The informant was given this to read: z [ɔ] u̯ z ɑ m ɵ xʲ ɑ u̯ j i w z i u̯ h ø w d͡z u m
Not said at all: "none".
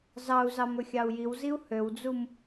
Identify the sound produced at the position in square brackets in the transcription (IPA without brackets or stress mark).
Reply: ɑ